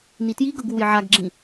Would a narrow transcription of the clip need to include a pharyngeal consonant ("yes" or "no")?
yes